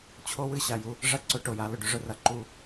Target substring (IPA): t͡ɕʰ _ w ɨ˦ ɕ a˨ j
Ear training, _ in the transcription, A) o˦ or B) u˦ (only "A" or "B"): A